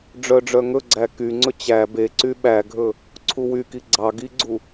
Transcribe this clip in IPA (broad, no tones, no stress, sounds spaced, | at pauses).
ɖ͡ʐ œ ɖ͡ʐ œ ŋ ɵ ɡ͡ǀ æ k y ŋ͡ǀ ɵ t͡ɕ æ b e ǀ y ɓ æ ɡʱ ɵ | ǀʰ u w y k i ɡ͡ǀ ɑ ɡ i ɡ͡ǀ u